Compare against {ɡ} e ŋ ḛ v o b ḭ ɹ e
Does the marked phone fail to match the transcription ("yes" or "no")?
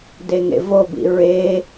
yes